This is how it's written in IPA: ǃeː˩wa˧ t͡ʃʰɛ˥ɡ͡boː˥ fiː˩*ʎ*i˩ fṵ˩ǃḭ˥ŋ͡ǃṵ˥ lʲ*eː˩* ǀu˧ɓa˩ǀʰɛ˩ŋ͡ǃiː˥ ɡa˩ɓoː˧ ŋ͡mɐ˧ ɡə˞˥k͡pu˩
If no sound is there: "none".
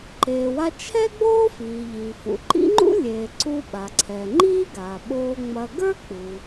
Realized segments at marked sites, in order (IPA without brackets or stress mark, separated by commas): ʎ, eː˩